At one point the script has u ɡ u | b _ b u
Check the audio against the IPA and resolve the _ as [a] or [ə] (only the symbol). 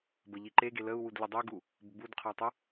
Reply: ə